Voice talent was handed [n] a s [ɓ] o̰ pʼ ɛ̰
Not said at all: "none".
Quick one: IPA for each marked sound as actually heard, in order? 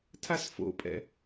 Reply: tʰ, f

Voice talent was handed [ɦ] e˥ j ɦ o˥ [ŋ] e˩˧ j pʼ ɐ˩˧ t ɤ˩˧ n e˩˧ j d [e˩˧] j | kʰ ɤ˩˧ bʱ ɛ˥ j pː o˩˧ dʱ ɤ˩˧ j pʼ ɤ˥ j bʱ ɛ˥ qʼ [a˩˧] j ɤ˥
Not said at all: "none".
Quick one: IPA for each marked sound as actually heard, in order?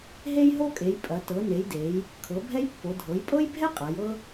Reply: ɦ, kʼ, e˩˧, a˩˧

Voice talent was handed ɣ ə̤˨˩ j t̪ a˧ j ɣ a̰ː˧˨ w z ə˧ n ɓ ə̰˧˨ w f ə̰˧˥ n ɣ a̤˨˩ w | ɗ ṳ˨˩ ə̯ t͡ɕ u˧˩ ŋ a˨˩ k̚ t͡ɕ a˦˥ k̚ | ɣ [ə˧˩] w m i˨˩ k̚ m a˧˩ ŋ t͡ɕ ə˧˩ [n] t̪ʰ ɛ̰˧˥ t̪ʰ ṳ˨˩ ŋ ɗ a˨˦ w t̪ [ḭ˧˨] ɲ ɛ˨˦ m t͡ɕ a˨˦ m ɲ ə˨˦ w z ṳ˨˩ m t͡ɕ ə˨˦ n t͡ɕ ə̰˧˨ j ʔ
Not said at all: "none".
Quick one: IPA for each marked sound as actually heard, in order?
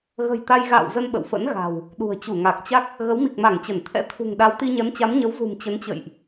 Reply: ə˨˦, n, i˧

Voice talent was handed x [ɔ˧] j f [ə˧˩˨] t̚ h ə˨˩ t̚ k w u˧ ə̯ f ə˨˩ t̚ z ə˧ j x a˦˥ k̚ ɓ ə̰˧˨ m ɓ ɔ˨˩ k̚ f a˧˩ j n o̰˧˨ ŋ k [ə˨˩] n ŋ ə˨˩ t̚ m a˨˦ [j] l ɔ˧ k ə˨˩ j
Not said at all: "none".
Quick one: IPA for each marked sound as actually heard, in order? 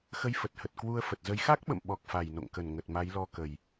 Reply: ə˧, ə˨˩, ə˧˩, j

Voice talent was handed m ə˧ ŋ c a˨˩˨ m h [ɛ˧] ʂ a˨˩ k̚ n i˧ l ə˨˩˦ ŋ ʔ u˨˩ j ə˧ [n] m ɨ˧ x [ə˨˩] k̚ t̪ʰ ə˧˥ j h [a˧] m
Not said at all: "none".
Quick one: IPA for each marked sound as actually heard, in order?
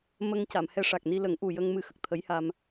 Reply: ɛ˧, ŋ, ə˨˩, a˧

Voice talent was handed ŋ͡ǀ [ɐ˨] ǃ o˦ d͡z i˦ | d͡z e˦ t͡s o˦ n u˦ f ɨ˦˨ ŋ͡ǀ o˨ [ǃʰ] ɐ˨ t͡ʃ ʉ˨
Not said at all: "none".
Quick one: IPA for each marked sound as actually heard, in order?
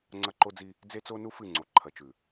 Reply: ɐ˦, ǃʰ

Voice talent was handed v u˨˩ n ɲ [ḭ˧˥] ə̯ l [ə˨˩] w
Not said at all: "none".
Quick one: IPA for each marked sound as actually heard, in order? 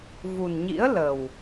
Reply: ḭ˧˥, ə˨˩

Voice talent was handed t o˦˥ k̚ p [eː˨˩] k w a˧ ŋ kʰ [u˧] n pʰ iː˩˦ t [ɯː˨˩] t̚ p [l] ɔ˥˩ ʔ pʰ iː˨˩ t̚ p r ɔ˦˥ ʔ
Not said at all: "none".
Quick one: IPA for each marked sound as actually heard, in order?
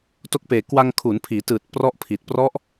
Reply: eː˨˩, u˩˦, ɯː˨˩, r

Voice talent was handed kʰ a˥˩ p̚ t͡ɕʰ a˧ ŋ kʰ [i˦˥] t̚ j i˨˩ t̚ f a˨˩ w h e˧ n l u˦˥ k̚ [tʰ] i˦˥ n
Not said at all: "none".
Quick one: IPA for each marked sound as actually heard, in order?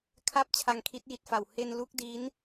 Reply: i˦˥, d

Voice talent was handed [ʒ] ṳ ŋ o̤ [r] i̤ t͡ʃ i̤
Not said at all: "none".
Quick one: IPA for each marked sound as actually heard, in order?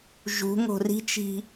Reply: ʒ, r

